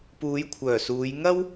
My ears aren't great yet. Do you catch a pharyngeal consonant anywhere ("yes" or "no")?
no